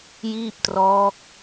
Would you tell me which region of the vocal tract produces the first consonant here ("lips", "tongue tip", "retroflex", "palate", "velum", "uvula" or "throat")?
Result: palate